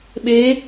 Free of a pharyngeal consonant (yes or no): yes